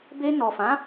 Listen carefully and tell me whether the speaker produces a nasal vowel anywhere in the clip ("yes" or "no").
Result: yes